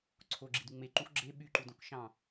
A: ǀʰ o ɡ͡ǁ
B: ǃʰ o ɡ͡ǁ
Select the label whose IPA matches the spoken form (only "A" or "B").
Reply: A